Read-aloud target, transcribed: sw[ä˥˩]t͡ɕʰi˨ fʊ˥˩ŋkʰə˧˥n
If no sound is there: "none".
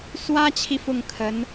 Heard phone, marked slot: ä˥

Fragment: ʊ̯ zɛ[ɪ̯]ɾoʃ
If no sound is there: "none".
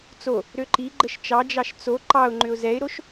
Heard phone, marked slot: ɪ̯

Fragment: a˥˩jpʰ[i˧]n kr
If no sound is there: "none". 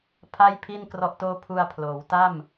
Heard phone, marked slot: i˥˩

